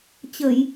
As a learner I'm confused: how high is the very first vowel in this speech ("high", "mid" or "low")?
mid